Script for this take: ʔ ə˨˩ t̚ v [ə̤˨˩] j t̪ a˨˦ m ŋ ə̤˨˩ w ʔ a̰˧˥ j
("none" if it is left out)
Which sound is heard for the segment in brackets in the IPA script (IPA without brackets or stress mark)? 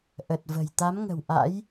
ə̤˨˩